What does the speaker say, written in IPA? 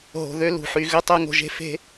ɦ o̤˨ ð ø˦ l ṳ˨ ħ y˨ ɣ ʏ˦ tˤ œ˦ ŋ o̤˨ ʒ e̤˦ f e̤˦

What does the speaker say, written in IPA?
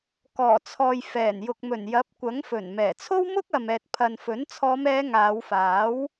k ɔː˨˩ t͡sʰ ɔː˨ j f ɛː˨˩ n j ʊ˨ k̚ m ɵ˨˩ n j ɐ˨˥ p̚ kʷ ɐ˨˥ ŋ f ɵ˨˩ n m ɛː˨˩ t͡sʰ o˥ w m ʊ˥ k̚ ɐ˨ m ɛː˨ t̚ pʰ ɐ˨ n f ɵ˨˥ n t͡sʰ ɔː˨˧ m ɛː˨˧ ŋ aː˨˧ w f aː˨˥ w

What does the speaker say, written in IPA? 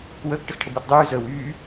w əː k ʈ ə x ʈʰ ə b əː t dˤ yː z əː w yː

